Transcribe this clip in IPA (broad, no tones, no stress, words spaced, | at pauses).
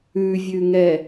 ʉvʲʉŋɛ